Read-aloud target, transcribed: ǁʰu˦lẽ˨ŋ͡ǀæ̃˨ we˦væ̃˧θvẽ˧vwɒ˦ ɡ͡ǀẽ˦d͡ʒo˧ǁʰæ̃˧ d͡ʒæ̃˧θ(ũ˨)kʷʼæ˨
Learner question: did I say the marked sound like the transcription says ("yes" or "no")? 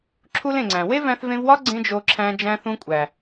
no